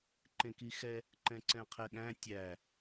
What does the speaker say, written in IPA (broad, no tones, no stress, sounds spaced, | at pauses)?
ǃ ẽ k i x ɛ | ǃ ɛ̃ ǀ ɛ̃ qʰ ɛ ɠ æ̃ tʲ æ